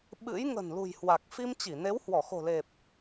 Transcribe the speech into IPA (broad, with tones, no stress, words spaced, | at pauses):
ɓɨ̰˧˥j ŋə̤˨˩nlṳ˨˩jhwa˨˩k̚ fi˧mt͡ɕi˧˩ne˨˦w hwɔ˧˩xo̤˨˩le˨˩p̚